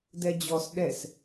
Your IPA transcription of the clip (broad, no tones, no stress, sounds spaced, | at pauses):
d ɛ d͡ʑ ɔ s ɗ ɛ s